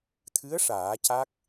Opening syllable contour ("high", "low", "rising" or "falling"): rising